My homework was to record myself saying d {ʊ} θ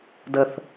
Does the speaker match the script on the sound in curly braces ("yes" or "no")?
no